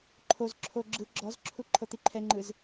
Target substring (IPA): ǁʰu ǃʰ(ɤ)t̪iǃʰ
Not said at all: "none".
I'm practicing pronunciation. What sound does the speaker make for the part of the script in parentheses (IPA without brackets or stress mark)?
ɤ